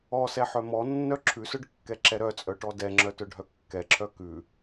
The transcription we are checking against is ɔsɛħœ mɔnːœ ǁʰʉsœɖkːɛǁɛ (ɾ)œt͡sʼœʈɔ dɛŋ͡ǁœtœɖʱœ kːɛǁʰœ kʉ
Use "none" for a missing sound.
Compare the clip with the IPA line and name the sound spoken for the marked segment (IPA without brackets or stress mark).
ɾ